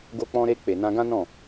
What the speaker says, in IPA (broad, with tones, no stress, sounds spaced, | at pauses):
ɡ o˧ k͡p ɔ̃˧ ɾ e˧ k͡p e˨ n ã˧ ɡ ã˦ n ɔ̃˦˨